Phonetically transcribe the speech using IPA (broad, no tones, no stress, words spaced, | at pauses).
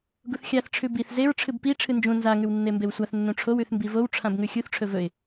ɡuθxʲaθ ʈ͡ʂʰʉbiθ zeɹ ʈ͡ʂʰɨbpi ʈ͡ʂʰɨnd͡ʒũ nza ŋʉwnːembewsʷaθ nːũʈ͡ʂʰow ʉθmbivow ʈ͡ʂʰãbŋʉxʲuθ ʈ͡ʂʰɵvɵɪ̯